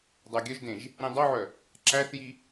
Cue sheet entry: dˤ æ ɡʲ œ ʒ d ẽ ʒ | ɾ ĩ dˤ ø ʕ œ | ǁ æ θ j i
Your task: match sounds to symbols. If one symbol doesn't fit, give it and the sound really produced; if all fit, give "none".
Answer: ø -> œ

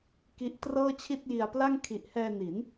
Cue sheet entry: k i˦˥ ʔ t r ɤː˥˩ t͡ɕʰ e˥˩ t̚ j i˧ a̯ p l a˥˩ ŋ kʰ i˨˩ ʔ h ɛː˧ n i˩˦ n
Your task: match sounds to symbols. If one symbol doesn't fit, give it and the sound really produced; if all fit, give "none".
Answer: e˥˩ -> i˥˩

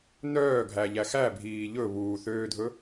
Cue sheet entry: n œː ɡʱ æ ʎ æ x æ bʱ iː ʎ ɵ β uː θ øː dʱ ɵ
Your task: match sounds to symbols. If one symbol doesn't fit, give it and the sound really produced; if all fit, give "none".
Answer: none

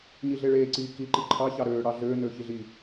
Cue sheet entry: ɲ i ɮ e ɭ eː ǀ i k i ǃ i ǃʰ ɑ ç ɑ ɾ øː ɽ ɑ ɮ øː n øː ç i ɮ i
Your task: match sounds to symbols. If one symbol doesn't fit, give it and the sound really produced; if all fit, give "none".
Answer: none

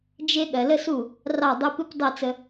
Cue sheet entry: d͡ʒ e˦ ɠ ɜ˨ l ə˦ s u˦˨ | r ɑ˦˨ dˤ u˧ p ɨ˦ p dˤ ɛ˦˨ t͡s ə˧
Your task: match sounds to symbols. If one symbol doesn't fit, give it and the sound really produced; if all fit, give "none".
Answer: none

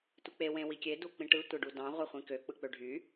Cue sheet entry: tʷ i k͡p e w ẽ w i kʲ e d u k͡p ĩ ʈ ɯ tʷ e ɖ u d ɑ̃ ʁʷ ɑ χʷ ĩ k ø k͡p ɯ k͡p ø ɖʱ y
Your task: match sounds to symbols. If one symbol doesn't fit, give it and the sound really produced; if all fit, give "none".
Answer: none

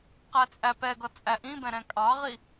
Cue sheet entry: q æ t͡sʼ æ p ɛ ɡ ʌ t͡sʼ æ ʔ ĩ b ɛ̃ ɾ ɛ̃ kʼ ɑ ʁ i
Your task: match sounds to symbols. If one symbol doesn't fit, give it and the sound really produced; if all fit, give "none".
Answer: none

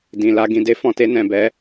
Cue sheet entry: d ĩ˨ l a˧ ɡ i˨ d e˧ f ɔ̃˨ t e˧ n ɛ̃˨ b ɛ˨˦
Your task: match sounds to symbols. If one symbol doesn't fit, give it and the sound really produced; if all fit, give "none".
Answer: i˨ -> ĩ˨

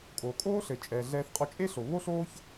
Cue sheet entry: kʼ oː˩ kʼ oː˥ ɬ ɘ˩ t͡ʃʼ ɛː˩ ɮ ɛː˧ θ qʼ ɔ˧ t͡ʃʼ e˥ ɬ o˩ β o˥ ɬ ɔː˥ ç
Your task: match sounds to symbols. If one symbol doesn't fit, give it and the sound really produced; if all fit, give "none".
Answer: ɔː˥ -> oː˥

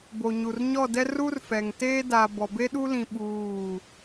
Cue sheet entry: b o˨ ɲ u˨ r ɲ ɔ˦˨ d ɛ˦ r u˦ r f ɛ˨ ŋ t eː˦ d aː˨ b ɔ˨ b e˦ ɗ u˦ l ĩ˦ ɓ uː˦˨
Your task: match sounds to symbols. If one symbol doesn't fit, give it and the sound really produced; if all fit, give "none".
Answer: none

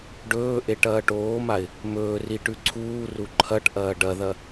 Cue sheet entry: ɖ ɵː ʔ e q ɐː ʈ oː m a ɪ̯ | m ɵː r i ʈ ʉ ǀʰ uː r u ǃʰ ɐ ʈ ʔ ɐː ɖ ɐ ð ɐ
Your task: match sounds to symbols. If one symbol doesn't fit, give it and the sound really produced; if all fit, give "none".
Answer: q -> ʈ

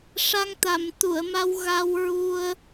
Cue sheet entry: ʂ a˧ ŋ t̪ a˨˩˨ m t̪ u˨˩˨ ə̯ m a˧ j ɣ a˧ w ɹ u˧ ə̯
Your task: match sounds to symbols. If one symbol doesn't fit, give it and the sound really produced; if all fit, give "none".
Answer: j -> w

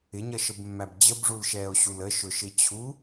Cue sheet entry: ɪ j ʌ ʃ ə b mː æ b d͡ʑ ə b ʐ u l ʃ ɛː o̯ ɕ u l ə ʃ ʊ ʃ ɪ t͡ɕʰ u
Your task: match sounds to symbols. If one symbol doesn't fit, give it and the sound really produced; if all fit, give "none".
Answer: j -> ɲ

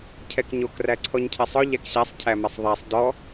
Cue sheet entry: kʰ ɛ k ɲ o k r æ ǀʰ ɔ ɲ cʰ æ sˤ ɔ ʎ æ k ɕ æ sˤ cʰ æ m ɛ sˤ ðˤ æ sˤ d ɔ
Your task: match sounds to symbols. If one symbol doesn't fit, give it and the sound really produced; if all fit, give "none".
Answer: kʰ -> cʰ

